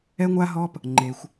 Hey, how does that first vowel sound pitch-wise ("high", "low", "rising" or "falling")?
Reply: high